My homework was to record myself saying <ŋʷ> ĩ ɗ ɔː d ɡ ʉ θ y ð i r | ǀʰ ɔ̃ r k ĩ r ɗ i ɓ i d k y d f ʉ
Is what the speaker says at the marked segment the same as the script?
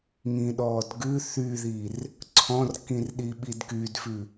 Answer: no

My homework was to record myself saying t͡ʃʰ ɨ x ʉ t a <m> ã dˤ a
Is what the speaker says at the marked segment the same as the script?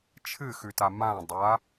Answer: yes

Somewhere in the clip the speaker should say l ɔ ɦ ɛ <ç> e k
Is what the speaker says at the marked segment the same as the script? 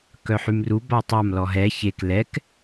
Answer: yes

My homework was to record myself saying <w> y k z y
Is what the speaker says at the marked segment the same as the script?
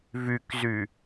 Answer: no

